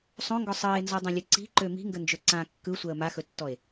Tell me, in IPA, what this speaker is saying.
sˤ õ ŋ ɡ ɔ sˤ əː e̯ n z ɔ dˤ ã lʲ ɵ ǀ i̤ ǃ ø m i̤ ŋ ɡ ə n d͡ʒ ø ǀ ã kː ɯ sʷ əː m a x ɵ tː ɔ e̯

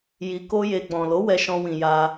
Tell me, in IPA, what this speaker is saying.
j i˧ k o˦ j e˧ ɡ͡b ɔ̃˨ l o˨˦ w ɛ˧ ʃ ɔ̃˧ w ĩ˨ j a˧

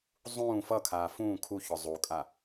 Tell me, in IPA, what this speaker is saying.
zˤ ũː f ʌ kʰ aː f ũː kʰ u ç ɔ zˤ u kʼ a

